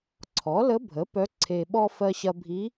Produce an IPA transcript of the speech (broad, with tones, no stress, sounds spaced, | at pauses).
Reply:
ǀʰ ɔ˩˥ l ə˧˥ bʱ ə˩˥ p œ˧˥ ǀʰ e˧ ɓ ɔ˧ f ɜ˧ ɕ ɐ˧ bʱ i˧˥